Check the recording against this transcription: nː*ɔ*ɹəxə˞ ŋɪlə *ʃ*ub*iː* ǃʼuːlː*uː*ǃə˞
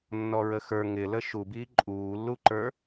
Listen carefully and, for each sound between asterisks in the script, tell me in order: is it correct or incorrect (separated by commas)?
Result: correct, correct, correct, incorrect